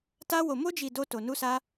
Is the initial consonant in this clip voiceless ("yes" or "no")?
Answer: yes